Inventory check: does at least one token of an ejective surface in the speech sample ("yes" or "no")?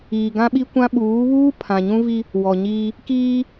no